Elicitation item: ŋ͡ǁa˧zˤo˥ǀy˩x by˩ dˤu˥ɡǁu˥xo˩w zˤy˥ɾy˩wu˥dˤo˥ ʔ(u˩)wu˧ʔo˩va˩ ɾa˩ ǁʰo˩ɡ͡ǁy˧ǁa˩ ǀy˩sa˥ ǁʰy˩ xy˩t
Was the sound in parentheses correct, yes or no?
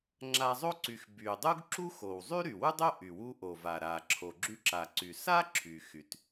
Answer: no